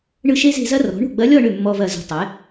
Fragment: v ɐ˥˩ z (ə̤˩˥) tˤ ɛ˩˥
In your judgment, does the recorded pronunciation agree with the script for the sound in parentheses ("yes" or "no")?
no